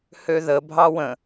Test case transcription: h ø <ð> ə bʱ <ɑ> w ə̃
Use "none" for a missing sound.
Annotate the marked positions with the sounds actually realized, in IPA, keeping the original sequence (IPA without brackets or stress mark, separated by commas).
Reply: ð, ɑ